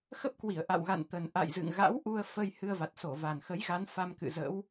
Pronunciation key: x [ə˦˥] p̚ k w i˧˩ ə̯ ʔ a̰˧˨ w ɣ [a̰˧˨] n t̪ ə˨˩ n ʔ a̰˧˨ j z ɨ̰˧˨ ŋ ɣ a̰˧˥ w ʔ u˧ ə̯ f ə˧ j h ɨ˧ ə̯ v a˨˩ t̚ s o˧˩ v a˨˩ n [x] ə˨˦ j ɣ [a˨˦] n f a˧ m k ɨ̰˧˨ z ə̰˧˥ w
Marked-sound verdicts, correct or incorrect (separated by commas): correct, correct, correct, correct